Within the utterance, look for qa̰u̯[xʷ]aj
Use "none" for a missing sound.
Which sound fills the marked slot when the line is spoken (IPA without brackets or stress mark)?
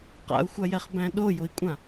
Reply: xʷ